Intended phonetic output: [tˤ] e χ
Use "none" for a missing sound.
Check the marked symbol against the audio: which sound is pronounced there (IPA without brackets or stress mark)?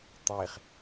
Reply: tˤ